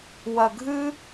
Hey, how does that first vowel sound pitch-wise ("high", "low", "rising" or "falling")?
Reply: low